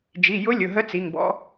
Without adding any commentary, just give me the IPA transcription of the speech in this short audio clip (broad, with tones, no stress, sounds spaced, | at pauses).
d͡ʒ i˩˧˩ j ʊ˧˥ lʲ ʊ˩˧˩ ɦ ə˧˥ t͡s i˩˧˩ ŋ b ɔ̰˧˥